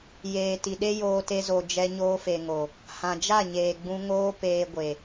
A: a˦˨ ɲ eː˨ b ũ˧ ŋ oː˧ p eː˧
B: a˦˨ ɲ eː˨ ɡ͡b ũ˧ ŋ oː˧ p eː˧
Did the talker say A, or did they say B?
B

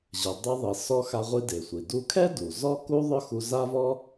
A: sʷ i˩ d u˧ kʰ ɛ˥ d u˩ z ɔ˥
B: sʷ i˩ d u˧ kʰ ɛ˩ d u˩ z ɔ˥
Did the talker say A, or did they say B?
A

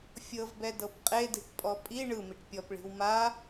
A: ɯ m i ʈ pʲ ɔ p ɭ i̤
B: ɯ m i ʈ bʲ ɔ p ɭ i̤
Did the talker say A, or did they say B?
A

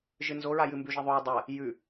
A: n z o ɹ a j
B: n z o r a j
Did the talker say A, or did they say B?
A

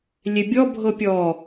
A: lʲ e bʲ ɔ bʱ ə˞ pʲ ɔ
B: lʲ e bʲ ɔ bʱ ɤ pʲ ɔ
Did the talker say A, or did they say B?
B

